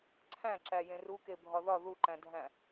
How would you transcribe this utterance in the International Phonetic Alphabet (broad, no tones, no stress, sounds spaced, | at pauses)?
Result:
ǀʰ æ̃ ǁ æ j ẽ r u k e bʱ ɒ ð ɒ ð u ǃ æ̃ dʱ æ̃